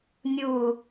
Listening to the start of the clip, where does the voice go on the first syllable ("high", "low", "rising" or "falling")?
low